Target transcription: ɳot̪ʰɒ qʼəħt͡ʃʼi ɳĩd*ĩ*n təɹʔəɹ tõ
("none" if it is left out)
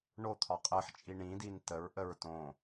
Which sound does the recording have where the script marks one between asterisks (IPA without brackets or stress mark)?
i